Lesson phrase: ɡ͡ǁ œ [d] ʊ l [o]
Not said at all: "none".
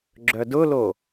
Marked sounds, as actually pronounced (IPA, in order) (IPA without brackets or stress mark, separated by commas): d, o